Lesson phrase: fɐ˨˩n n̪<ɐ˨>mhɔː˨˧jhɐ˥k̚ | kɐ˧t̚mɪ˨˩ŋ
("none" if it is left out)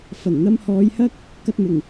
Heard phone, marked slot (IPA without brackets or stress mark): ɐ˧